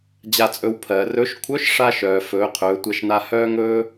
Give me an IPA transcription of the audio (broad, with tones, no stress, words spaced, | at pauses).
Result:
d͡ʑa˧t͡sʼɵ˧w pʰɜ˩ rɵ˧˥ʃ kʷʰœ˧˥ʃ ʂa˧ʃœː˩ fɵː˩˧qʰɵː˩˧tʷɛ˧ʃna˧ hœː˧ŋɵː˧